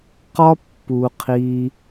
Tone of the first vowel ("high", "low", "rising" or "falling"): high